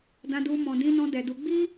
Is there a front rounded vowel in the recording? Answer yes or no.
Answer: no